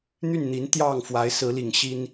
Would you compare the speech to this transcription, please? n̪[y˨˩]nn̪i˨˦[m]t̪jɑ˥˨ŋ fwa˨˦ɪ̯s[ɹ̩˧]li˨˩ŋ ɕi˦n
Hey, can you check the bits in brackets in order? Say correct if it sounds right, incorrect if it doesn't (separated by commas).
incorrect, incorrect, incorrect